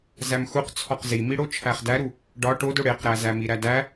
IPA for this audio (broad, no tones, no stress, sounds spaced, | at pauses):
z æ m x u q t͡sʰ ɒ q z i m i ɽ o t͡ʃʰ æ χ d æ ɾ u | ɖ ɒ ʈ o d o ɽ e q ɾ æ z æ m i ɾ æ d æ